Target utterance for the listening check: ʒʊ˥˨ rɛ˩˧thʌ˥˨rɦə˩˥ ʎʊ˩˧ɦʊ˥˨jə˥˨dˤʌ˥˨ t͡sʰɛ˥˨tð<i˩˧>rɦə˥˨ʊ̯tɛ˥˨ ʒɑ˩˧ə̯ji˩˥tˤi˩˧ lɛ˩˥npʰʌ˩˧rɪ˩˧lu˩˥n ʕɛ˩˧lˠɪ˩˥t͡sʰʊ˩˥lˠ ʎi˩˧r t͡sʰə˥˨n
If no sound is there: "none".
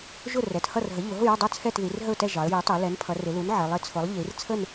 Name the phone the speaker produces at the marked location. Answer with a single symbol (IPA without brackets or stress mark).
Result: i˩˧